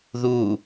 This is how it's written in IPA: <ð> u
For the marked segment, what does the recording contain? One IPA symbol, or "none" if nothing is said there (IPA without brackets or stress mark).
ð